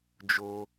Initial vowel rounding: rounded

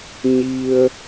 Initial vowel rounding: unrounded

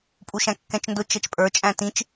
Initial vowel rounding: rounded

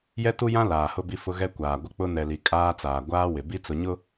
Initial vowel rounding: unrounded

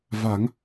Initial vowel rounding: unrounded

